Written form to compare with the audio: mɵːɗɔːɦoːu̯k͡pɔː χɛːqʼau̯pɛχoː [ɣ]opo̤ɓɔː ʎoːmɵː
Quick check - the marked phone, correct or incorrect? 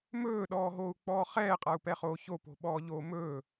incorrect